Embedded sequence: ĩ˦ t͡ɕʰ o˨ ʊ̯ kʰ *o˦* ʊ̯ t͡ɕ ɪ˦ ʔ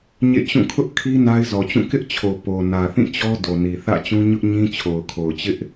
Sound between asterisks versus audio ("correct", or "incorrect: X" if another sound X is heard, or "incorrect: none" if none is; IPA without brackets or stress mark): incorrect: o˨